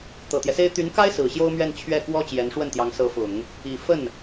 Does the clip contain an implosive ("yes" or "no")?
no